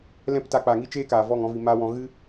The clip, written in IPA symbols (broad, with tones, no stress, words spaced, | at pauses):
lɛ̃˦pta˧ k͡pa˨ŋi˦t͡ʃeː˦ kaː˨vɔ˦˨ŋɔ̃˨˦vi˨ ma˧wɔ̃˨ ɣɨ˦